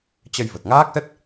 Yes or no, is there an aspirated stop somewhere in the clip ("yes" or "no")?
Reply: no